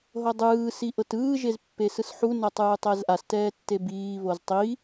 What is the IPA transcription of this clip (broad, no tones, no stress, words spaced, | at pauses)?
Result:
ɦɤdˤɯː siʔɤtɯː ʒezpːesɯsħu nɤtˤɯːtˤɛzʔas tɛːtːebiː βoztˤi